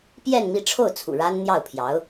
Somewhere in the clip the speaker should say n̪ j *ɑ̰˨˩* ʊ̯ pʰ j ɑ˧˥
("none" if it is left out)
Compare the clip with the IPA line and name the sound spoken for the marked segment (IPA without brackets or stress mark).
ɑ˥˩